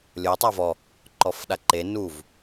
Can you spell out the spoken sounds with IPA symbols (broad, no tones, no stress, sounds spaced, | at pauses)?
lʲ o tˤ a v ɔ | ǃ ɔ f ɗ a ǃ e n u v